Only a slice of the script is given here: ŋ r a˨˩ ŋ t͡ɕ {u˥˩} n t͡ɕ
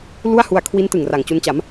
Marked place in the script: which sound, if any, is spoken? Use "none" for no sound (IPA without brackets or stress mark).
u˧